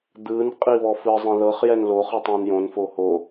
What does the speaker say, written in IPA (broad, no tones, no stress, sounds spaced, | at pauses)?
d̪ ɯ n qʼ i β ɔ f ɯ zˤ ẽ ð ɤ χ j ɛ n l o χ ɯ tˤ õ n j õ n f o h o